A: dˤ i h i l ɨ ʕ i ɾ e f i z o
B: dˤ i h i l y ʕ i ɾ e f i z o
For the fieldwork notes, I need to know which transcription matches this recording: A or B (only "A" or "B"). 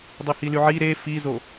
B